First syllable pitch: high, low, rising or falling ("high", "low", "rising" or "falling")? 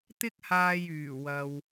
high